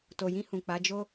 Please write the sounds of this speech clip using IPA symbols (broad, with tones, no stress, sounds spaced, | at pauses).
t o˨ j ĩ˧ h ũ˨ k͡p a˨˦ d͡ʒ o˦